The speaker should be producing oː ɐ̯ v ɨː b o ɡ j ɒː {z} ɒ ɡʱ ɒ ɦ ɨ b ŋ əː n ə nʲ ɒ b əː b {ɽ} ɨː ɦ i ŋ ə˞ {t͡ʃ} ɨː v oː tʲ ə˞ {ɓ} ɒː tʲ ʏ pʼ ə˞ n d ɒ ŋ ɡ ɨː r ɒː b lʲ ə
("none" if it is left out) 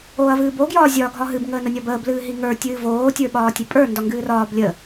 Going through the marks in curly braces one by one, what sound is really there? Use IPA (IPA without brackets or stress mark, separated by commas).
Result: zʲ, l, tʲ, ɓ